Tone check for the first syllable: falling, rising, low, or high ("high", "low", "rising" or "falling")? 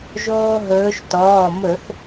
high